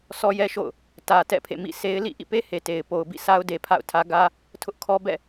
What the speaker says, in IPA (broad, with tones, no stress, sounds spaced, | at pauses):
s ɔ˦ j ɛ˦ ʃ o̰˦˨ ʊ̯ | t ä˨ t ɛ̰˦˨ pʰ ḛ˦˨ m ḭ˦˨ s e˦ ɪ̯ l ḭ˦˨ ʔ ḭ˦˨ p e˦ h e˨ t e˨ ɪ̯ p o˨ ʊ̯ b ḭ˦˨ sʰ a˦ ʊ̯ d e˨ pʰ a̰˦˨ ʊ̯ tʰ ä˦ ɡ ä˦ | tʰ ʊ˦ ʔ kʰ ɔ˦ b ɛ̰˦˨